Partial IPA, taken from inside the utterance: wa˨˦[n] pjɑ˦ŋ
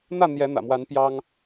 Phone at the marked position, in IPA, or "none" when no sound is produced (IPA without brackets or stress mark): n